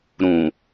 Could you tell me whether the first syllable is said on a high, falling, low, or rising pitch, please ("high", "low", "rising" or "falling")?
low